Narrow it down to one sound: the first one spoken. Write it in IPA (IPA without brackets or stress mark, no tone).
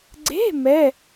ɡ͡ǀ